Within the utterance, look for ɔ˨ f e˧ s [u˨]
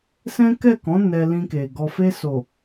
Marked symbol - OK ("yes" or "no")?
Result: no